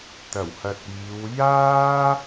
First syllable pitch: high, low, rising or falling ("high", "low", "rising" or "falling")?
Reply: low